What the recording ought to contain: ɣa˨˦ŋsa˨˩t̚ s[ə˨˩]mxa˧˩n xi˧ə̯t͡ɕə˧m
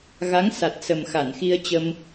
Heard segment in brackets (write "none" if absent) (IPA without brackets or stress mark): ə˨˩